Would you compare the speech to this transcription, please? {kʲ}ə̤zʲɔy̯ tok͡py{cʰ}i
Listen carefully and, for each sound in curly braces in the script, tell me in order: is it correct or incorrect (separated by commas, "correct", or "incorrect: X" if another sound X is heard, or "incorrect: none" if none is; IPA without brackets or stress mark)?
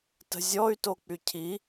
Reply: incorrect: t, correct